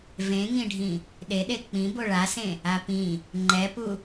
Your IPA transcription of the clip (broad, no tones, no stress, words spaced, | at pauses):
vẽŋĩɖʱĩ | ɗeɗe k͡pĩ boɭasẽ | apĩ | ŋ͡ǃɛpu